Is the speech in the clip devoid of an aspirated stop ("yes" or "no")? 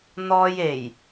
yes